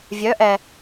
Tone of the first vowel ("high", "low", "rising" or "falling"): rising